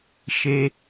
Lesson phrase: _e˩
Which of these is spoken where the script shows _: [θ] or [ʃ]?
ʃ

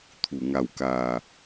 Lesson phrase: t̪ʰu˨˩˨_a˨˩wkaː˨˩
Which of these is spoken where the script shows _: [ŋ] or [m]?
ŋ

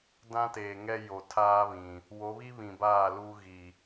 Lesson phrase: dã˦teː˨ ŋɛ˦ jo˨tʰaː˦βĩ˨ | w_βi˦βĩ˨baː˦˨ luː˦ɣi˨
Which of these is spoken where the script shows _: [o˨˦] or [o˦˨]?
o˨˦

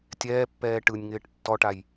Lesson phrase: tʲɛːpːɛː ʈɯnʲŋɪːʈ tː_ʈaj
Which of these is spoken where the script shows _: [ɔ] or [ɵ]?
ɔ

